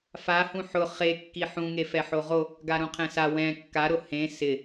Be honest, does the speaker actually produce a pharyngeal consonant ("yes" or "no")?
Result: yes